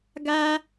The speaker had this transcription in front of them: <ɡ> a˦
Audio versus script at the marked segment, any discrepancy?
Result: no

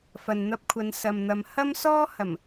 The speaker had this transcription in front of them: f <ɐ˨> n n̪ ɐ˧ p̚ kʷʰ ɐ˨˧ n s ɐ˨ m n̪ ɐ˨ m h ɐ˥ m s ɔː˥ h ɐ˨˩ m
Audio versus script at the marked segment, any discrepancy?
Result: no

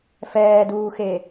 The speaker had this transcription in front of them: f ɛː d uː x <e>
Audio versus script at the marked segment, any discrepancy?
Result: no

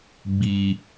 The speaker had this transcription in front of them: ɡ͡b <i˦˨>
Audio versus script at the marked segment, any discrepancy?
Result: yes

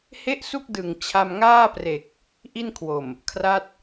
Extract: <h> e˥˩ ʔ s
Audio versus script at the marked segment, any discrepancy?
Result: no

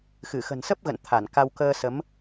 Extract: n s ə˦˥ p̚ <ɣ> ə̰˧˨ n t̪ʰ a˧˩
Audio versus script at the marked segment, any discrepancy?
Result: no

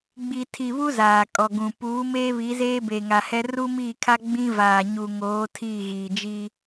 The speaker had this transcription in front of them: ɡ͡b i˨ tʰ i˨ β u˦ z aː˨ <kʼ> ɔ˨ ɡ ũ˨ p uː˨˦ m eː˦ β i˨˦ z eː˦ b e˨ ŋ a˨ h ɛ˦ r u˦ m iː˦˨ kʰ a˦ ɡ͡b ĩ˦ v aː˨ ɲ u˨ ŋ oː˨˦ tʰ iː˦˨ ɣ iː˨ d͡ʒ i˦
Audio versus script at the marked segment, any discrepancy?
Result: no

